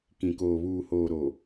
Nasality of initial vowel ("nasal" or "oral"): nasal